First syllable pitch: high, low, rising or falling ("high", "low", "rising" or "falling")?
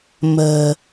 low